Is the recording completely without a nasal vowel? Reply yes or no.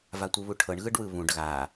no